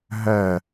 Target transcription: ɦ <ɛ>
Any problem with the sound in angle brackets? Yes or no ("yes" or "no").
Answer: no